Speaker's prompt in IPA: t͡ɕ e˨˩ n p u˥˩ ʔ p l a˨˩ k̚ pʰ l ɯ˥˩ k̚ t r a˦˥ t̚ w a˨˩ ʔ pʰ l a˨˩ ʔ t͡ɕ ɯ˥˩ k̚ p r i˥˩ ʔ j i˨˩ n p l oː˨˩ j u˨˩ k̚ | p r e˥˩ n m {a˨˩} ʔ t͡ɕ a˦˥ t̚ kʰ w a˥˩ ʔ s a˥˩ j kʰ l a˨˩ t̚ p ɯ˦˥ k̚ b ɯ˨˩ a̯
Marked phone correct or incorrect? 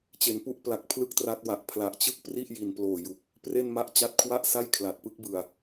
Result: incorrect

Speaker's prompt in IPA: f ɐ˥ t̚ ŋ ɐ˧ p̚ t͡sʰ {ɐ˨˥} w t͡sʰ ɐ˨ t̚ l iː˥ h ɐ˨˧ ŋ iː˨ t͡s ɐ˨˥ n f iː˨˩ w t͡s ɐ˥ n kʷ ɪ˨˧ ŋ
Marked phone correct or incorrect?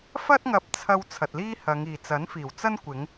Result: incorrect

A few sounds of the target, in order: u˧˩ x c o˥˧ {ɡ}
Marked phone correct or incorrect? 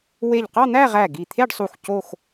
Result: incorrect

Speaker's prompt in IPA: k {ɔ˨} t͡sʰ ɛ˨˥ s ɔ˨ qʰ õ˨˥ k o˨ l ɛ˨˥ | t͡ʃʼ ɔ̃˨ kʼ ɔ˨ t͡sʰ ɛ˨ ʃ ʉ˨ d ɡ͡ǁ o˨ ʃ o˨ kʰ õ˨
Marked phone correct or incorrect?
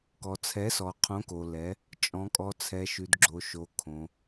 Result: correct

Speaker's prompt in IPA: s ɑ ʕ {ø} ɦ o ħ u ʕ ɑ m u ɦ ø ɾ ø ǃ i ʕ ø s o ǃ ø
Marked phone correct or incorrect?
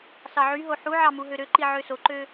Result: incorrect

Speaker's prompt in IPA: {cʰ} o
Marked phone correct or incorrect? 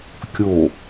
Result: incorrect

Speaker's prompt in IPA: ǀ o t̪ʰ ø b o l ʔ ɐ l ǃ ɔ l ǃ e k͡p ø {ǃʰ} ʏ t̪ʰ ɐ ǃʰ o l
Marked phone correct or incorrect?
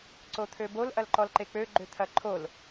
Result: incorrect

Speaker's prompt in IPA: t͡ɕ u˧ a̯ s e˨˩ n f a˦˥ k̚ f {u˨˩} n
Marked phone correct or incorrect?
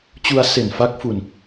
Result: incorrect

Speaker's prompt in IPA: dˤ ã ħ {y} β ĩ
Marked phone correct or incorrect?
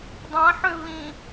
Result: incorrect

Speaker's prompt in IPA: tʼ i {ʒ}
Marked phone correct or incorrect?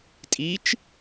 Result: incorrect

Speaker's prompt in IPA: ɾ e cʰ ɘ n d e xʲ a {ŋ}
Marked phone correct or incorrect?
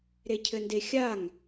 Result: correct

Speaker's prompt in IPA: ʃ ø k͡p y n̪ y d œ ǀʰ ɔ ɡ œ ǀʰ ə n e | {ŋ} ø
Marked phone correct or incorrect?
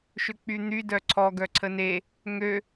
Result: correct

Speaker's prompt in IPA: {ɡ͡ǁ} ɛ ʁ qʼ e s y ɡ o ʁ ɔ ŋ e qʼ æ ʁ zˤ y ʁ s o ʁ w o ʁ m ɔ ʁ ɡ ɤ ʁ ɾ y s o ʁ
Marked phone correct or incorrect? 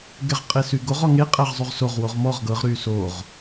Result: incorrect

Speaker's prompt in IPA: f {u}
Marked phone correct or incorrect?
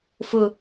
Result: incorrect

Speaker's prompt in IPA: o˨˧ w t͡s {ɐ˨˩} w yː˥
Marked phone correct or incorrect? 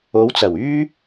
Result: correct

